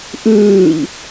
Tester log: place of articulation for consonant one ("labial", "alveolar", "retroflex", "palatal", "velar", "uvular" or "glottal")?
glottal